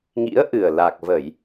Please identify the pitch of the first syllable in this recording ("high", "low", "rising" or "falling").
rising